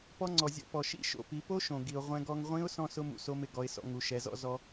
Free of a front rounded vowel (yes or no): yes